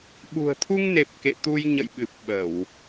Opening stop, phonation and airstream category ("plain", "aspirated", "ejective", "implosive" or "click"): implosive